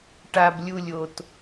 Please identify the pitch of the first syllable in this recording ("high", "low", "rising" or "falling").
high